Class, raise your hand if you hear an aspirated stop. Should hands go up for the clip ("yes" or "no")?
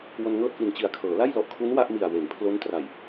yes